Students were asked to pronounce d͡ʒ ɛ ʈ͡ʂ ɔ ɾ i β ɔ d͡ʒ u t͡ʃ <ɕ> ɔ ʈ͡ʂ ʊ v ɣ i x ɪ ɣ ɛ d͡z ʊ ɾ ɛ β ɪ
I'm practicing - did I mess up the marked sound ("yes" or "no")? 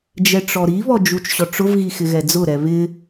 no